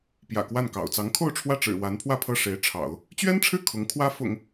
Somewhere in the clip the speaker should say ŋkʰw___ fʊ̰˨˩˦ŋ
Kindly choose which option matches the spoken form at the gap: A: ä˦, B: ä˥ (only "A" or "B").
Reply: B